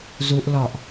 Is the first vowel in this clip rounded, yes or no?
yes